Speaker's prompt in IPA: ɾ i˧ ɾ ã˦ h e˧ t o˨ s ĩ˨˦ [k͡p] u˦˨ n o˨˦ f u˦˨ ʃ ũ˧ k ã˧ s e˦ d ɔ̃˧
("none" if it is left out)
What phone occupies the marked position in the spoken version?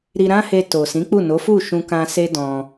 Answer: k͡p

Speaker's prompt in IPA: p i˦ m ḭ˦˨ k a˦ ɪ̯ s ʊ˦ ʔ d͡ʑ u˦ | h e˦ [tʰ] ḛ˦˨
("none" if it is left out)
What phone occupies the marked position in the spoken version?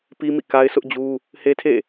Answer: tʰ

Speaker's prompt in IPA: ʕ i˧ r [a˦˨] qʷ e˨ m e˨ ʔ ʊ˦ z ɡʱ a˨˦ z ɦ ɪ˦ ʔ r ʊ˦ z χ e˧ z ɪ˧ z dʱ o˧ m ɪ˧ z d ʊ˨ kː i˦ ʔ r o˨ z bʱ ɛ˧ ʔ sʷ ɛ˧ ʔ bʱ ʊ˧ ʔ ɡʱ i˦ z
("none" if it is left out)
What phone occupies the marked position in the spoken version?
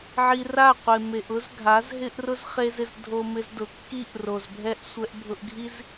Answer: a˦˨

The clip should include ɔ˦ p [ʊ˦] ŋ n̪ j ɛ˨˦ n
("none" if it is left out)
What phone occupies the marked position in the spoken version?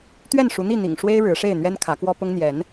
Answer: ʊ˦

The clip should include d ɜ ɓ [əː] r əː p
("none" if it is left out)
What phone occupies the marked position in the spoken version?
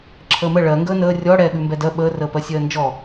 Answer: əː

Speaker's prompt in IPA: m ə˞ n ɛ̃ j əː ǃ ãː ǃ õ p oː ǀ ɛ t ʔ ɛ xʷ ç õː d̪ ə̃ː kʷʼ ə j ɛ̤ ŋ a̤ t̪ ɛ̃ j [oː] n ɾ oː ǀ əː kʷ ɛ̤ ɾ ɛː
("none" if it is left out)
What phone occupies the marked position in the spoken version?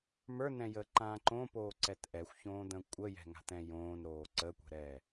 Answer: õː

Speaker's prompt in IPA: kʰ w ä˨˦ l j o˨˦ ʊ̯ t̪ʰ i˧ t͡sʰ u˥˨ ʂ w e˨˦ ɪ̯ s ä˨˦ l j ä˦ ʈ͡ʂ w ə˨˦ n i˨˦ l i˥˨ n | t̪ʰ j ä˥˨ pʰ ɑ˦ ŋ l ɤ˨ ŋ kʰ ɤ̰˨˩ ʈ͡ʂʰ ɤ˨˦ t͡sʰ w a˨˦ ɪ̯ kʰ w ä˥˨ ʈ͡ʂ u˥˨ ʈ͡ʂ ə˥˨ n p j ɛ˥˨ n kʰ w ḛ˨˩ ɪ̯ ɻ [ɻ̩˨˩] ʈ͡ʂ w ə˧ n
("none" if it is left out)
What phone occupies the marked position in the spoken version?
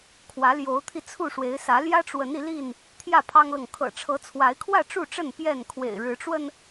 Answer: ɻ̩˨˦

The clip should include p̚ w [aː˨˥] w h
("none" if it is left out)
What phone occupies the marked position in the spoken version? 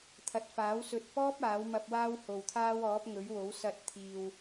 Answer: aː˥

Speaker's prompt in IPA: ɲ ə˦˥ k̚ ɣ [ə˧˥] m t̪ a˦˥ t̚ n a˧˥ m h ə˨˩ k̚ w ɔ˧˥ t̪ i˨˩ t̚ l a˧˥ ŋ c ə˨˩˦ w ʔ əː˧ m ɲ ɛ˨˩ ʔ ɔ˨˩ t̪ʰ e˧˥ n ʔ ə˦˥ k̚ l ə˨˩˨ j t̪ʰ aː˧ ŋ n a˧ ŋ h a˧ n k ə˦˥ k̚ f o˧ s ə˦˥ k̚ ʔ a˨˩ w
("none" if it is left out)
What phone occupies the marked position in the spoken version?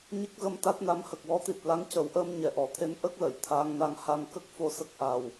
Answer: ə˧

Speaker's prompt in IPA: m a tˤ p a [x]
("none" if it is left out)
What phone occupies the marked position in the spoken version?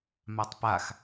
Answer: x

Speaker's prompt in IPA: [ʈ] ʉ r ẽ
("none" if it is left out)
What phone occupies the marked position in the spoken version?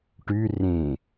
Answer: ʈ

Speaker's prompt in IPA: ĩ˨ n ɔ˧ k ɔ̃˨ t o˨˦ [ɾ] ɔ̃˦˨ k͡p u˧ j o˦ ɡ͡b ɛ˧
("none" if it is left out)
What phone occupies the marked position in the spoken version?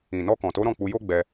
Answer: ɾ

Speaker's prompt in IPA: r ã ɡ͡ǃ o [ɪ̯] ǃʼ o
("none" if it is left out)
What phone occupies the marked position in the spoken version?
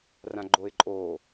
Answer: ɪ̯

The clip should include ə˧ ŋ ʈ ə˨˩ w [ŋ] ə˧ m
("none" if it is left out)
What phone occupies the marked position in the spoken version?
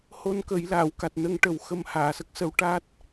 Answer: x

